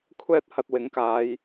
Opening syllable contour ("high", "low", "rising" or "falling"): high